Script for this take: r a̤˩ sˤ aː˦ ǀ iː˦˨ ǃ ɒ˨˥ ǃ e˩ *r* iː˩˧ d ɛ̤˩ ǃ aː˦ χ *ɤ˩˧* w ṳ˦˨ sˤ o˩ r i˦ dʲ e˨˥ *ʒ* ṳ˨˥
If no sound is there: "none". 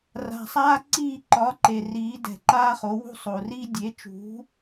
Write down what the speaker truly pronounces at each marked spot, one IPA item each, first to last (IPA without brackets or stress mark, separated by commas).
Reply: r, o˩˧, t͡ʃ